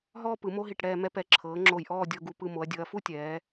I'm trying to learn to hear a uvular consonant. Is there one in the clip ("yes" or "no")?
no